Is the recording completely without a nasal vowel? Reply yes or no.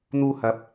yes